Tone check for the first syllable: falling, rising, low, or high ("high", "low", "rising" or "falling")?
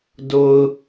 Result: low